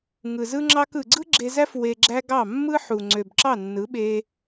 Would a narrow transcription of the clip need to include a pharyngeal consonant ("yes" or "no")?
yes